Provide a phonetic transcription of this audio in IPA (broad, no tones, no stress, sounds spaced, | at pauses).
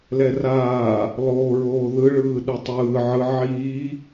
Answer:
l ɛ r aː | lˠ oː ɹ oː ð ɯ ɭ ɯː ɗ u tˤ ɯː ʕ ɯ ʕ iː